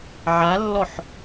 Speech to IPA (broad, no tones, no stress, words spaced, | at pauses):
ʕalːɔħ